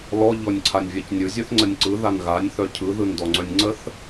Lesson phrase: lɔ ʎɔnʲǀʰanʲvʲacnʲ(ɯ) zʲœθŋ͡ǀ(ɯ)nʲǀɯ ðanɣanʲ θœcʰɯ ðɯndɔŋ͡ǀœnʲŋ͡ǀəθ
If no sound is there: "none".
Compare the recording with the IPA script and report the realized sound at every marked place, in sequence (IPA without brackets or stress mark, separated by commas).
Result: ɯ, ə